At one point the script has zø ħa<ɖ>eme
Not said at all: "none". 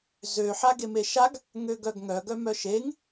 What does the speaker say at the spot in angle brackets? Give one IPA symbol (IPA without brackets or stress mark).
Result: ɡ